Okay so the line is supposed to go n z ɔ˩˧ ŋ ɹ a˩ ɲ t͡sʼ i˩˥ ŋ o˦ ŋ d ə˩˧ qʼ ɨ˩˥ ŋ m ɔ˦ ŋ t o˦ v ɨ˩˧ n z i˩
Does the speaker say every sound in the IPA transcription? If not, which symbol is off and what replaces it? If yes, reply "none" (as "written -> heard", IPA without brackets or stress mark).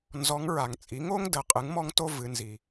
ɲ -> ŋ